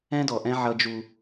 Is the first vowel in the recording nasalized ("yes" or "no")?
yes